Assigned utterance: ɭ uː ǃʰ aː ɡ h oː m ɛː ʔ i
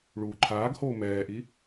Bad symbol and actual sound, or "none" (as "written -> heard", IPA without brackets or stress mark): none